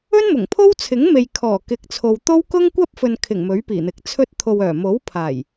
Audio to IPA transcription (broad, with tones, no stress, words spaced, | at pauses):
ɵ˥nmʊ˨˩ŋpʰo˥w t͡sʰɪ˨˥ŋme˨jkʰɔː˨˩ kɪ˨˥k̚t͡sʰo˨w t̪o˥w kʊ˥ŋ kʷɐ˥p̚fɵ˨n kʰɪ˨˩ŋ mɵ˨˥ɥpiː˨˩n̪ɪ˨k̚t͡sʰɵ˥t̚ t̪ʰo˨wœː˨˩mo˨˥w pʰaː˨˩j